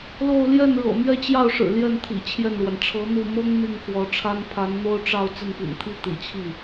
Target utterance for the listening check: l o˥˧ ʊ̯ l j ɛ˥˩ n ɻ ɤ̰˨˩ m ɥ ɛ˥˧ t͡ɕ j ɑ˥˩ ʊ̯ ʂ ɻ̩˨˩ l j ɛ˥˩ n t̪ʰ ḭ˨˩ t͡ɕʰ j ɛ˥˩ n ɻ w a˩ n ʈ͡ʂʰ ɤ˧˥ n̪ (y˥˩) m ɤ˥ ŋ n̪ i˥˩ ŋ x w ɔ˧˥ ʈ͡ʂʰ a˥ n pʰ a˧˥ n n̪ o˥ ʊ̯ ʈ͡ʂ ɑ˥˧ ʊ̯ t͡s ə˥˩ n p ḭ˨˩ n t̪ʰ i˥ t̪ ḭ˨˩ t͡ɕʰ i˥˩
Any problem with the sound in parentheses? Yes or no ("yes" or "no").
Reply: yes